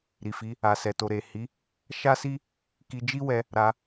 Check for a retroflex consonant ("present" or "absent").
absent